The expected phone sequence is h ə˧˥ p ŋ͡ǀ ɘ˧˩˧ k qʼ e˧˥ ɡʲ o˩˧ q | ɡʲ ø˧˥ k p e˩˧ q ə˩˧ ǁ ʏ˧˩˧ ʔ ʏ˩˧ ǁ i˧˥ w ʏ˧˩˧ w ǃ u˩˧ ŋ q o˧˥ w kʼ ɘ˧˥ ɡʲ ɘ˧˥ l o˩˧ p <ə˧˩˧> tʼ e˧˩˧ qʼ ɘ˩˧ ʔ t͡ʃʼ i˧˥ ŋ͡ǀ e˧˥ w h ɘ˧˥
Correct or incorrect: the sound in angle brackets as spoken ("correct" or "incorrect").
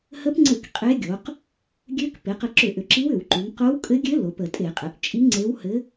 correct